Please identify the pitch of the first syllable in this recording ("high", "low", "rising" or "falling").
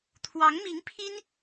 rising